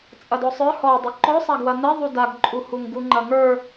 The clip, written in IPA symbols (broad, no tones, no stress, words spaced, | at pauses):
t͡sʼɐdɔsˤə˞ hɔʊ̯dˤu ǃɔsˤaɡwɐ nɛ ðˤudaɡǃʼuhuŋ ɡuŋ͡ǃɐŋə˞